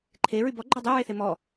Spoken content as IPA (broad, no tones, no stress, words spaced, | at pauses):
ǃʰeɹy bɔɡ͡ǃø dˤøɹeθe mɔ